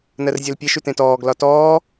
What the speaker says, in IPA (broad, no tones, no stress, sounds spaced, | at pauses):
n ɜ r zʲ ɜ l pʲ e ʃ ʉ t ẽ t ɔː ɡ l ɒ t ɔː